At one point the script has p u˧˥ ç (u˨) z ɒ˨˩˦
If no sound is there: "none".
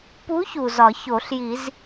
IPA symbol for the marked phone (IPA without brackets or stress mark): u˨